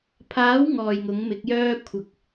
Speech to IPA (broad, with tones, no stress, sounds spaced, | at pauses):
pʰ aː˨˥ w ŋ ɔː˨˩ j ŋ ʊ˨˥ ŋ m ɪ˨˥ k̚ j œː˥ kʷʰ ɐ˨˥ k̚